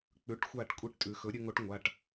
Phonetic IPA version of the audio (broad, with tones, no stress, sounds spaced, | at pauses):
k͡p ʉ˩˥ ʈ xʷ a˧˩ ʈ kʷʼ i˧˥ ʈ tʼ ʉ˩˧ x ɵ˩˥ ɾʲ ʉ˧ ŋ o˧˥ ʈ ŋʷ a˩˧˩ ʈ